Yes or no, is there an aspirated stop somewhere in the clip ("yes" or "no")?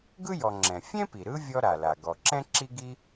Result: no